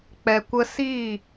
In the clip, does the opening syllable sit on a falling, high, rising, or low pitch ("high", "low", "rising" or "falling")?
low